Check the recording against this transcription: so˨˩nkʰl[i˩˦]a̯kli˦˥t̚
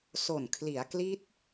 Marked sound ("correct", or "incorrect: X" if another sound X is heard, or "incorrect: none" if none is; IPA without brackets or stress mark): correct